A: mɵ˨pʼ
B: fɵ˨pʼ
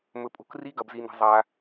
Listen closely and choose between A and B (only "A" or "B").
A